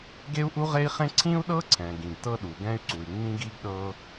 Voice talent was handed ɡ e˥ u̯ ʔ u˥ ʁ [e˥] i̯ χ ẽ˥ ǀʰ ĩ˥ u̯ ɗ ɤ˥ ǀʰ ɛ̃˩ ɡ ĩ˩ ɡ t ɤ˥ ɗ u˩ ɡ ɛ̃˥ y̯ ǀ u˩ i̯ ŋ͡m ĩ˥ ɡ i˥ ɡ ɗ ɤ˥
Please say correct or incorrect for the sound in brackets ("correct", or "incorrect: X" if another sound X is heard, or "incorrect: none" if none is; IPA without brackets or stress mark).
correct